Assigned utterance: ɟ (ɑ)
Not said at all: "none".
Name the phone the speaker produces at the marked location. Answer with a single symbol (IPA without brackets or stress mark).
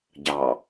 ɑ